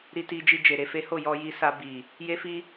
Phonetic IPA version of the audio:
ɾ i˧ t i˧ d͡ʒ i˧ d͡ʒ e˨ ɾ e˧ f e˦ h o˦˨ j ɔ˧ j i˧ s a˧ b i˨ | j e˦ f i˦

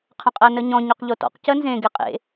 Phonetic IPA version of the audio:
qʰ ə̃ qʼ ɜ n ə ɲ ɔ̃ ɲ ɵ q ʎ o t ɔ̰ q c ɜ n z ẽ ɡ e qʼ ḛ

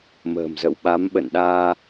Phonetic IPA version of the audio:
m ə̤ː˨˩ m z ə̰˧˨ w ɓ a˨˦ m ɓ ə̰˧˨ n ɗ aː˧

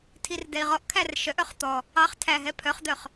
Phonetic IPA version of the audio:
tʰ i r d ɛ i̯ ʁ ɔ ʔ kʰ æ r ʃ œ ʔ œ χ t̪ ɔ | ɑ χ tʰ æ ɦ ɛ pʰ œ χ d̪ œ χ

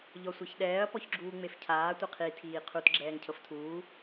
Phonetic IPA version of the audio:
ʎ ɔ sʷ ɛ ç ɗ ɛː ɐ̯ p ɔ ç ɡ͡ǁ uː ŋ͡m e f cʰ aː tʷ ɛ qʰ i tʰ iː qʰ u t ɡ͡ǁ ɛː ŋ cʰ ɤ f tʰ uː

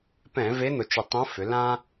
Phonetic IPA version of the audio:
p ɛ̃˧˩˧ v e˧˥ n̪ ʊ˩˧ t͡ʃ ʏ˨˩ tˤ õ˧˥ f ʏ˩˧ l ã˥

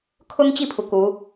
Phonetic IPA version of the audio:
kʰ ʊ˥ ŋ t͡ɕ i˥˩ pʰ u˩ k u˧˥

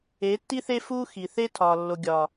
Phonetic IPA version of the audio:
e˨˦ tː i˦ θ e˦ f u˦ x i˨ θ e˦ tʰ ɒ˨ lː o˨ ɡʲ ɒ˨

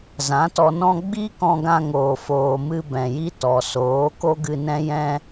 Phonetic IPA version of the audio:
z ã˨˦ t ɔ˧ n ɔ̃˦ ɡ͡b i˦ k ɔ̃˧ ɡ ã˧ ŋ oː˨ f oː˨ m ɨ˧ b ɛ̃˨ j i˦ t ɔ˨ s oː˨˦ k o˦ ɡ ɨ˧ n ɛ̃˦ j ɛ̃˦

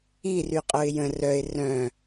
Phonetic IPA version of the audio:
i r y qʼ o ɪ̯ j ə̃ r œ ɪ̯ r œ̃

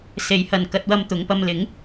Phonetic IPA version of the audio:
s e˨˧ j h ɐ˨ n k ɐ˧ t̚ w ɐ˧ m t̪ ʊ˨˧ ŋ p ɐ˧ m l ɪ˨˥ ŋ

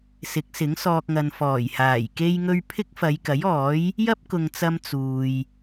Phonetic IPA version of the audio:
s ɪ˨˥ k̚ s ɪ˨˥ ŋ s ɔː˧ k̚ ŋ ɐ˨ n f ɔː˨˩ j h aː˨˩ j k e˥ j ŋ ɵ˥ ɥ pʰ ɪ˥ k̚ f ɐ˨˧ j k ɐ˨˥ j ɔː˨˥ j | j ɐ˥ p̚ k ʊ˨ ŋ t͡s ɐ˧ m t͡s uː˨ j

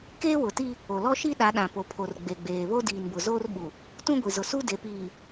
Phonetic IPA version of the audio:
k eː˦ w ʊ˨ t i˦ | o˨ l ɔ˦ ʃ i˦ ɗ a˨˦ ɗ ã˨ p o˨ pʰ o˨ r ɡ͡b e˨ ɡ͡b eː˨ β o˦ d iː˨ n b ʊ˨ z oː˦ r ɓ u˨ | t ũ˦ ɡʷ i˨ z ʊ˨ s u˦ d e˨ p iː˨

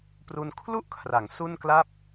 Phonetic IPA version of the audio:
p r u˧ n kʰ l u˥˩ ʔ kʰ r a˩˦ ŋ s u˥˩ n k l a˥˩ p̚

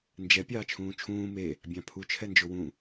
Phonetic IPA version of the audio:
n d͡ʒ ɛ pʲ ɑː t͡ʃʰ ũː t͡ʃʰ ũː m e | bʲ ɑ̃ pʰ u t͡ʃʰ ɛ n d͡ʒ o w ũ

